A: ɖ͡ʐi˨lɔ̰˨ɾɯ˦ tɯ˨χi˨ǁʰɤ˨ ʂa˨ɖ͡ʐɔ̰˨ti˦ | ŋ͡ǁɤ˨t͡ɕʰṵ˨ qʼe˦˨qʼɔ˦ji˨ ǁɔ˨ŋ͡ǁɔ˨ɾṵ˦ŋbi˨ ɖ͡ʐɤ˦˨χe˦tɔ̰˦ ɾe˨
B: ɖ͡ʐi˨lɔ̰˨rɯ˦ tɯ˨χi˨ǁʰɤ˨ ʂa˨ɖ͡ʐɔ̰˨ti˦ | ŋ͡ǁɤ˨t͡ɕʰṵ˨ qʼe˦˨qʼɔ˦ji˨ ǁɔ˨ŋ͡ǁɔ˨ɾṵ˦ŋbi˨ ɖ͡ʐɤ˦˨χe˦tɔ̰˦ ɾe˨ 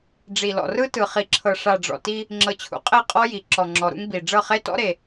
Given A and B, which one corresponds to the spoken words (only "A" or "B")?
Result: B